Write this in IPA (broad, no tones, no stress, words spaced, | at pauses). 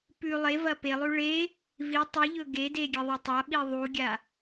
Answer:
pʉ lˠe vɐpelˠʉ ɭe | vi tˤiʎɵ ɡede ɡʲeðˤetˤaɓi ðˤuɡʲa